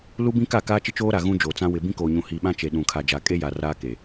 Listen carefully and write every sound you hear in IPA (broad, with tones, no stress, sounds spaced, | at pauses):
l u˦ b ĩ˦ k a˦˨ k aː˦ t͡ʃ ɪ˦ t͡ʃ oː˦ ɾ a˨ ɣ ũ˦ d͡ʒ oː˨ t͡s ã˦ w ɪ˨ b ĩ˦ k oː˨ ɲ ũ˨ h i˨ ɓ ã˦ t͡ʃ e˨ ɗ ũ˨ kʰ a˨ d͡ʒ a˨ kʼ e˦ j a˨ r aː˦ k e˨